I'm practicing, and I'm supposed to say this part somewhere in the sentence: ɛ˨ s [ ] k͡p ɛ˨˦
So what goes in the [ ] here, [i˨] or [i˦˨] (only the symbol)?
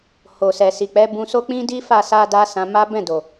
i˨